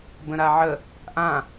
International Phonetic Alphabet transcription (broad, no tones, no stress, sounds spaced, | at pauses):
b ə̃ ɾ a ʕ ə | ʔ ã